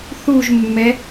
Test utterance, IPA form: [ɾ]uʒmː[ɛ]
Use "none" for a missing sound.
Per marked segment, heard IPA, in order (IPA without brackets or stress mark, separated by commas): θ, ɛ